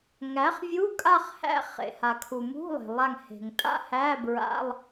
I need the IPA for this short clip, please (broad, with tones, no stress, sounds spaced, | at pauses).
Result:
ŋ æ˩˥ χ vʲ u˧˥˧ kʼ a˥˧ χ h æ̰˥˧ χ ḛ˩ h a˩ kʰ u˩ m ṳ˧˥˧ lˠ e̤˩ lˠ a˧˩ ŋ h e̤˩ ŋ tʼ a̰˥˧ h æ˧˥˧ b ɹ a̰˧˥˧ lˠ